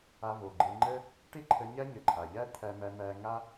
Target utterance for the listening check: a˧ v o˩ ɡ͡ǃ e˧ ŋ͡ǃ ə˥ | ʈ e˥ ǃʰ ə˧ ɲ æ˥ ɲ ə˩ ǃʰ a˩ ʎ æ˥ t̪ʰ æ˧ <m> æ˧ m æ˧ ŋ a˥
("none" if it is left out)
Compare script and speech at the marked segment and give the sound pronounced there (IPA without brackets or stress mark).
m